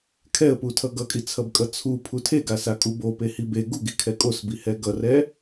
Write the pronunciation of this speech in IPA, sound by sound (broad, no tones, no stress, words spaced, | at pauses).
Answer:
kʰɛə̯putʰʌ ɡʌkʼit͡sʰʌbkʼʌ t͡sʰupʰu tʰeɡasakʼu bopehi be ɡuɡikʰɛ kʼosbihɛ ɡʌrɛ